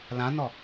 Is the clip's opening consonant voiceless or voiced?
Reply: voiced